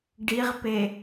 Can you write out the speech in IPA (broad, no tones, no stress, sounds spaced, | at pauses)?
ɖ i ʁ p e